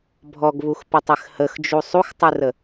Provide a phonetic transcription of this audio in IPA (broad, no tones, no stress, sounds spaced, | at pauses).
bʱ ɔ ɡ β u x p ə tˤ ɘ x h ə x d͡ʒ u sˤ u x tˤ ɨ r ə